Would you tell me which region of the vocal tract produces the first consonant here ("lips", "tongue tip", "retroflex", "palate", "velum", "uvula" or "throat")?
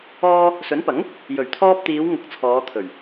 tongue tip